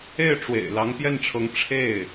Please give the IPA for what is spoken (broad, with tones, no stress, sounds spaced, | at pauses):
e˥˩ ɪ̯ ʈ͡ʂ w ḛ˨˩ ɪ̯ l ɑ˧˥ ŋ p j ɛ˥˩ n ʈ͡ʂʰ ɤ˧˥ ŋ ʈ͡ʂʰ e˥˩ ɪ̯